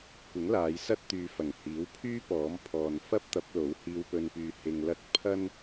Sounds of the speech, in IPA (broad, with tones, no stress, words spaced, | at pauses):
kʷɪ˨˥ŋlaː˨˧j sɐ˥t̚t̪yː˨˧ fɐ˨˩ŋhiː˨˥wpʰyː˥ pɔː˨˥m pʰɔː˨n fɐ˥p̚t̪ɐ˨˥p̚lo˨˥w hiː˧wpɵ˧npyː˧ hɪ˧ŋlɐ˥t̚ pʰɐ˥n